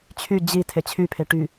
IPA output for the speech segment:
t͡ɕʰ y d͡ʑ i tʰ e t͡ɕʰ y pʰ e ʈ y

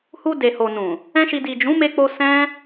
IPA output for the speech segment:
h u˧ d e˨ h o˨ n ũ˨ | ɛ̃˦ ʃ i˧ d i˨ d͡ʒ ũ˨˦ m e˧ k͡p o˧ s ɛ̃˦

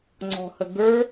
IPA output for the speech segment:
ŋ͡ǀ ɔ̤ h ə ɡ ə˞

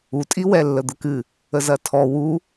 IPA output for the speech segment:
u tʼ i w ɛ lː ə d̪ ə k ɨ | ə z ɐ tʰ ɔ w u

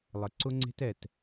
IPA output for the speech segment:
lˠ ə˨˦ ǀ ʊ˦ ŋ͡ǀ e̤˦ t ɛ˨ t

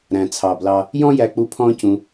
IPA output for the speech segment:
ɾ æ̃˨ t͡sʰ ɑ˨ b l ɑ˧ | j ɔ̃˦ j æ˧ k͡p u˧ pʰ ɔ̃ː˦ c ũ˧

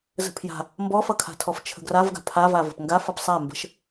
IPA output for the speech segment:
z ə̤ pʰ j a̤ | m b ɔ f ʌ kʰ a̤ tʰ ɔ f t͡ʃʰ ə̤ ɡ r a v ɡ a̤ pʰ a v a v ə̤ p ŋ ɡ a f ʌ p sˤ a m b ə̤ ʃ

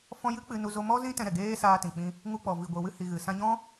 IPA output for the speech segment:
f ɔ̃˧ j ɨ˦ k͡p ɨ˧ n u˧ z o˧ m ɔ˦ z ĩ˦ t ɛ̃˧ ɾ ɛ˨ ɡ eː˧ s aː˧ t ĩ˨ k͡p ĩ˧ | ŋ u˧ k͡p ɔ˨ v i˨ ɡʷ e˨ w ɨ˧ h i˨ ɣ ɨ˨ s ã˧ ɲ ɔ̃˦

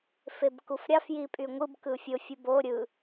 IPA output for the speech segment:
f e b k u f ɾʲ ɑ f j i pʼ y ŋʷ ɯ b k ɯ fʲ o fʲ ɯ b o ɾʲ ɯ

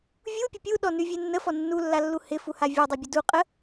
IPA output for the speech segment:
vʲ u pʲ ə pʲ u ɗ ɔ n ʉ vʲ e nː ə f ɔ nː u lː a lː u h ɪ f u h a vʲ ɔ dˤ u bʲ ə d u qʼ ə

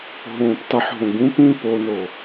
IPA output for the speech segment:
ɦ õː p tˤ ɯ ħ ɦ õ ɡ ũ p ĩ p o n o

